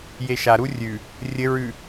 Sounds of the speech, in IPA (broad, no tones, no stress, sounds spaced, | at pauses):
j e ʃ a ɾ u rʲ ʉ | rʲ ɘ ɹ ʉ